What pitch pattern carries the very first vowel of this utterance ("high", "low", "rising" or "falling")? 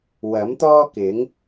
rising